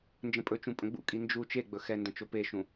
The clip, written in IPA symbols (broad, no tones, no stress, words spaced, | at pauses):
nd͡ʒə̃pʼɵt͡ʃũ pʼə̃ɡ͡bṵkʼi nd͡ʒu t͡ʃeɡ͡bɵ xɛndə̃ t͡ʃopeʃũ